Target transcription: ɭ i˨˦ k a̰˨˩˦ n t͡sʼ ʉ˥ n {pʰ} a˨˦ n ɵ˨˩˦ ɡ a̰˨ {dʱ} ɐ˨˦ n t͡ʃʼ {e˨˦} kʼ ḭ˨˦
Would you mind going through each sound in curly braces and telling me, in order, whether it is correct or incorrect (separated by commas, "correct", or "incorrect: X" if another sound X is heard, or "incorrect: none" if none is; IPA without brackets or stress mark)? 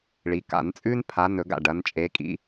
correct, incorrect: ɖ, correct